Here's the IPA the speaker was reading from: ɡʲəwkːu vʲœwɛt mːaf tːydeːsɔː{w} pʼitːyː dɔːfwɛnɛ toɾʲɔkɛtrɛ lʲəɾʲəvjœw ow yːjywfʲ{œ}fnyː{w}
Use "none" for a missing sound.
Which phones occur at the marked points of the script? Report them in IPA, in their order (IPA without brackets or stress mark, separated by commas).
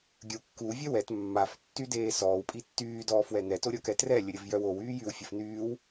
w, ə, w